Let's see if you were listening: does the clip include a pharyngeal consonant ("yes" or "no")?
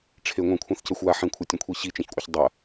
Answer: yes